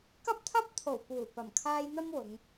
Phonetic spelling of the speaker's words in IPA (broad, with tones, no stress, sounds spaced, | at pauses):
k ɐ˥ p̚ t̪ʰ ɐ˥ p̚ t̪ʰ o˨˩ w p uː˨˩ p ɐ˨˩ m kʰ aː˧ j n̪ ɐ˥ m w ʊ˨˧ ŋ